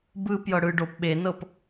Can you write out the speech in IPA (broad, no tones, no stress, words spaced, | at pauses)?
bɯ pjɤɽɯ ɖop ɓenɤp